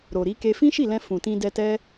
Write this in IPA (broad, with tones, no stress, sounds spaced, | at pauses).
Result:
ɾ o˨ ɾ i˨˦ k e˧ f ĩ˦ ʃ i˦˨ l ɛ̃˧ f ũ˨ t ĩ˧ d ɛ˧ t ɛ˦